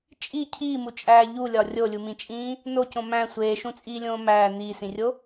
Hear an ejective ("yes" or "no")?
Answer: yes